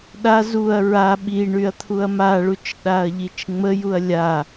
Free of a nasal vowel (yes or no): yes